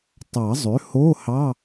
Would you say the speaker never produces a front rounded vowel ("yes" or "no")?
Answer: no